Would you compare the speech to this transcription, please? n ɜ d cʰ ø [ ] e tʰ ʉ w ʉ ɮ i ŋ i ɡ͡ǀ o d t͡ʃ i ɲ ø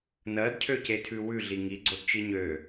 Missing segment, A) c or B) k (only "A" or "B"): A